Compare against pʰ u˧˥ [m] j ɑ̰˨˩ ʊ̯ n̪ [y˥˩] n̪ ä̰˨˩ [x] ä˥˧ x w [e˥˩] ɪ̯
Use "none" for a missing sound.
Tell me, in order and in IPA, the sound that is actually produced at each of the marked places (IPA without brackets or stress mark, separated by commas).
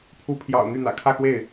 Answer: pʰ, y˥˩, kʰ, e˥˩